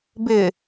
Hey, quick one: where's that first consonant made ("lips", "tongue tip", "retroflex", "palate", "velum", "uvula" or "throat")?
lips